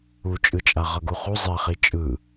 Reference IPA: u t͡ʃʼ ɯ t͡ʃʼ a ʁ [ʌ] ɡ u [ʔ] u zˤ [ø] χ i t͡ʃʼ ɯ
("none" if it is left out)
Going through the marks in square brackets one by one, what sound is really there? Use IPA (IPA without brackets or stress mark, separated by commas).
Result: ʌ, χ, ɛ